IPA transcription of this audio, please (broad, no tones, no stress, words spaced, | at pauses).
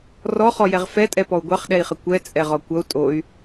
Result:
rɔχɔjɛʁ fɛtʼɛpɔu̯ ɡʷɑχɗɛi̯χə kʷɛt͡sʼɛʁɔ kʷʌu̯ tʼoy̯